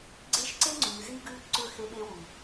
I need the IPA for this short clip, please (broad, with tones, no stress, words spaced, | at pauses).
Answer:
ɡ͡ǀe˦ʃ ǀe˦ŋ͡ǀʉː˨zi˦ ɡʉː˦bǀɵ˦˨xe˦ɓe˦ wu˨